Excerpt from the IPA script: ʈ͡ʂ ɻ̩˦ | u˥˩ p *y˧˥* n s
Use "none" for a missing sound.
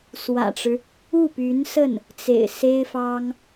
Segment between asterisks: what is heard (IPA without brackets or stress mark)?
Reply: y˧˥